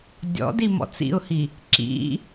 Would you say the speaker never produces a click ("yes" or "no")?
no